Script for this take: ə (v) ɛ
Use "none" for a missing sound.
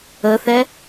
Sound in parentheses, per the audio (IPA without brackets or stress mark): θ